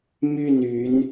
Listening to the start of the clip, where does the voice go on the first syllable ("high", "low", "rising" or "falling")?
falling